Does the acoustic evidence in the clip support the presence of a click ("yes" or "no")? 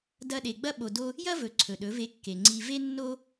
yes